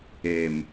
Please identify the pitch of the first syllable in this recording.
low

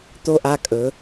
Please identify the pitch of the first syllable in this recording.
falling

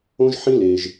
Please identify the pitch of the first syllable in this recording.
high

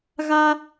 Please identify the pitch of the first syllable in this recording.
high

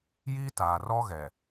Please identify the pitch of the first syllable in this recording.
high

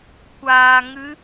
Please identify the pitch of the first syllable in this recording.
low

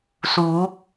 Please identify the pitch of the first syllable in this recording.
rising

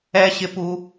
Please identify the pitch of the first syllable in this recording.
high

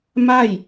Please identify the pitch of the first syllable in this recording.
falling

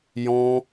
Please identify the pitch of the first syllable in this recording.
high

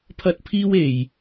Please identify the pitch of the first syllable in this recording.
high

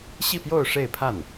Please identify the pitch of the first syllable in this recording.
falling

